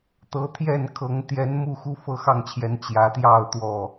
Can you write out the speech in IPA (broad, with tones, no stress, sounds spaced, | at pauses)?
t̪ ɤ˨˦ t̪ʰ j ɛ˥˨ n kʰ ɤ˨˦ ŋ t̪ j ɛ˨˦ n m u˥˨ x u˦ f ɤ˥˨ x ɑ˥˨ ŋ t͡ɕʰ j ɛ˨˦ n t͡ɕ j ä˨˦ t̪ j ɑ˥˨ ʊ̯ t̪ w ɔ˥˨